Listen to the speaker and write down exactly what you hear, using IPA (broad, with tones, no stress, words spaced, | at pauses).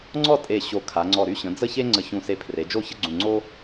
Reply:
ŋ͡ǀɔ˥˧tʼe˧˩ ɕo˧˩ kʰa˩˧ŋ͡ǀɔ˧˩ ɾy˧ɕə̃˩˧ d͡zə˥˧çe˥ ŋ͡ǀə˧˩çũ˧˩ se˧pʰre˩˧d͡ʒo˥˧ çə˥ɡ͡ǀũ˧˩ŋ͡ǀo˥